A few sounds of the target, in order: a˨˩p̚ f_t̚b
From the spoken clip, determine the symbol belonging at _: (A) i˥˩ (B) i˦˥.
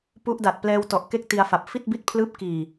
A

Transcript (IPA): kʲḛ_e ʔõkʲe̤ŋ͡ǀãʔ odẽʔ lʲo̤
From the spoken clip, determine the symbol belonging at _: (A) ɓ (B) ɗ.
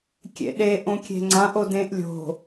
B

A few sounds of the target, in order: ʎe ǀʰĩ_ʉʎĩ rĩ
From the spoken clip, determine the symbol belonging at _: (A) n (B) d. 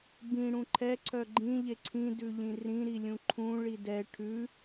B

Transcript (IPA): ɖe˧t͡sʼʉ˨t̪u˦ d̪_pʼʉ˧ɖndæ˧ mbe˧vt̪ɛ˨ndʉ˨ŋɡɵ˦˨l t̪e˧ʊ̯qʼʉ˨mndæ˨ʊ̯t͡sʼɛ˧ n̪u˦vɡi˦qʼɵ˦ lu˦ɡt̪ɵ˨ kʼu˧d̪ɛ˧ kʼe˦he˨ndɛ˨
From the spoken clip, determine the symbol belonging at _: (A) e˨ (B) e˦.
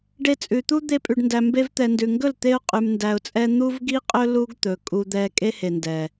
B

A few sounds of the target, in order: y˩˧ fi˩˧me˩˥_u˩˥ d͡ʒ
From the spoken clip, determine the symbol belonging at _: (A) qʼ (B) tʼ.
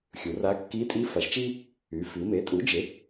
B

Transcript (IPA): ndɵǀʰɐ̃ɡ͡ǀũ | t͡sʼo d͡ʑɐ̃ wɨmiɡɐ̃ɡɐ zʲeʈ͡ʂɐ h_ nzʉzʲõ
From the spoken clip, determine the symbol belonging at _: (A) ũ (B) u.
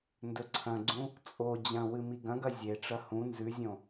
A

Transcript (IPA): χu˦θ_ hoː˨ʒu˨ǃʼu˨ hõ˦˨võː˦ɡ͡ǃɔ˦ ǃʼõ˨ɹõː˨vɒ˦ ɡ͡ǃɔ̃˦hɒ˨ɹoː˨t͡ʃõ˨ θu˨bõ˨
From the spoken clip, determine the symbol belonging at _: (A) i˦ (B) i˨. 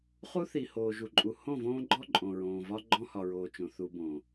B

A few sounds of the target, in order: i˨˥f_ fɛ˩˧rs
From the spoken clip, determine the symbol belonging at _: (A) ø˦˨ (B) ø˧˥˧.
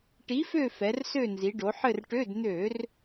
A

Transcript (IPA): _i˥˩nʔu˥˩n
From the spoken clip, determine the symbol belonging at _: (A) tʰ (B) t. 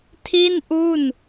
A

